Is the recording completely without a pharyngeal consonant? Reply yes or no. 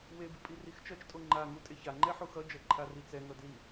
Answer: no